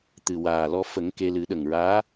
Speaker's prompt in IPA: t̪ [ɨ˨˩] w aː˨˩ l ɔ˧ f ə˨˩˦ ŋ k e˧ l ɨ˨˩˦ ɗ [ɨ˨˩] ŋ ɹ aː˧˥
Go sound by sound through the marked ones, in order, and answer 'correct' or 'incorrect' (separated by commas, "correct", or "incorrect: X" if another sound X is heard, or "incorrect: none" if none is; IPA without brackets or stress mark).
correct, incorrect: ə˨˩